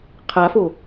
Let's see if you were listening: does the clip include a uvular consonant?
yes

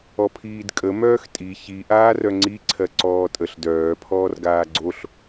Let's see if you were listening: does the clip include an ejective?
yes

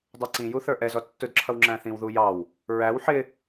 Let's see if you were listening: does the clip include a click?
yes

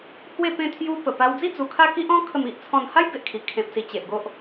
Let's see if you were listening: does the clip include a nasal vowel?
yes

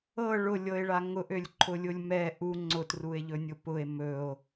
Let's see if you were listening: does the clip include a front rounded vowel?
yes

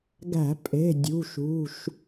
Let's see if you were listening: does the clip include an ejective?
yes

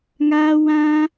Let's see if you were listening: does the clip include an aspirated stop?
no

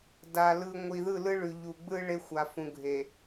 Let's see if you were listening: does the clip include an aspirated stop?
no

